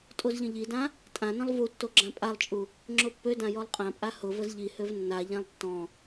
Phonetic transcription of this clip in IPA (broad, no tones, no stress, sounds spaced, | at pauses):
tʼ o z ʎ ə̃ ʎ i d ã | tʼ ã n ə̃ lˠ v u tː o ɡ͡ǁ ã pʼ a lˠ t͡ʃʼ u | ŋ͡ǁ ʊ pː ø d ã j ɔ lˠ qʼ ã pʼ a h ʊ v ə z ʎ i h ø v nː a ʎ ã lˠ tː ɔ̃